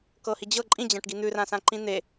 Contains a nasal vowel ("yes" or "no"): yes